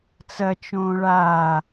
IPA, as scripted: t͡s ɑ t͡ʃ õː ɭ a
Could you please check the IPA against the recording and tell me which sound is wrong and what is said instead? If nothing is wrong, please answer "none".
ɑ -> ɐ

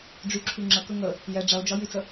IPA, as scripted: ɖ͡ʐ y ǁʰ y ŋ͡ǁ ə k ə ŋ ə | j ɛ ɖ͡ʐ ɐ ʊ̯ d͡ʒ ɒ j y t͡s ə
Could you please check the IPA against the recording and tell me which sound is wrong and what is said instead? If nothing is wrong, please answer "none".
none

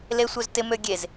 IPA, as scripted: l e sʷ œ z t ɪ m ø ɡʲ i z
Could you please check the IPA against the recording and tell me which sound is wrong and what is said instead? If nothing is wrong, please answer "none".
i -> e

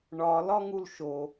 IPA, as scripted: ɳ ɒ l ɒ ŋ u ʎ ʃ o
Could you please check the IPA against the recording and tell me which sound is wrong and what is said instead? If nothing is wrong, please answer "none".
ʎ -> l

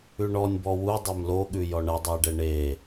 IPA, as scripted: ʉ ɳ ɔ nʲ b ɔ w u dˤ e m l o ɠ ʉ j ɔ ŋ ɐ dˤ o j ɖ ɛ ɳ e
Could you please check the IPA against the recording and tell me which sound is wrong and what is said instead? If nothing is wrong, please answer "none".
ŋ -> ɳ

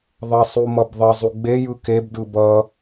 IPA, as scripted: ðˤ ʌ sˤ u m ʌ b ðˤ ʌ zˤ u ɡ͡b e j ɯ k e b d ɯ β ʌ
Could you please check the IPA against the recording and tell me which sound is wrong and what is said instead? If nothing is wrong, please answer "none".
β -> b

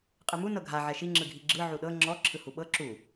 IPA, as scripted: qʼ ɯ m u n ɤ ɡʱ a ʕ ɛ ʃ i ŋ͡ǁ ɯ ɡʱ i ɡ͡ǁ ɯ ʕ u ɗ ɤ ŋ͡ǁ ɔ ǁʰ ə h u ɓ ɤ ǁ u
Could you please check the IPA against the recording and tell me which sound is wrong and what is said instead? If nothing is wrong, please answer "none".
ə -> ɯ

